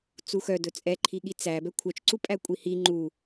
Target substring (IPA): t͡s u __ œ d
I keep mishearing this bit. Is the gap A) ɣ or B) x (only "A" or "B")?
B